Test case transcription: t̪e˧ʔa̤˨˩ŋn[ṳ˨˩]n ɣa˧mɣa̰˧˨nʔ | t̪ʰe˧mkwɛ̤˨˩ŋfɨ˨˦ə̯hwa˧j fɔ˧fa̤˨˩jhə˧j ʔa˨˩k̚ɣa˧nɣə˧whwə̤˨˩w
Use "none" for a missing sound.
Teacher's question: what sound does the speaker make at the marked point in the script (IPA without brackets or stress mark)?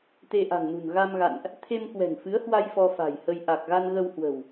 ṳ˨˩